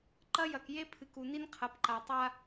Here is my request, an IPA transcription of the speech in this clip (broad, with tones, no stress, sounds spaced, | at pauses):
ǃ ɐ˦ j ɐ˨ k j e˦ pʰ ɨ˨ k u˨ n i˦ n qʰ ɐ˨ p ǃ a˨ tˤ a˦